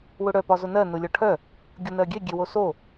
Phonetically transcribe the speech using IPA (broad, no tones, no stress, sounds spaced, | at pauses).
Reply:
w ʊ ɽ œ p ɒ z ʊ n ɜ n ʊ lʲ ɒ ʈʰ œ | ɡʲ ʊ n ɜ ɡʲ e ɡʲ e w o s o